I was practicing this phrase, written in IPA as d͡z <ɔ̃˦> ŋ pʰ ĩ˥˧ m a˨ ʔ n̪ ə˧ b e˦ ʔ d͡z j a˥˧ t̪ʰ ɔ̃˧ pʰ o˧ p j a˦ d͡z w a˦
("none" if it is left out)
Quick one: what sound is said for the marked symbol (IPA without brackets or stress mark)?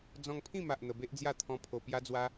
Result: ɔ̃˧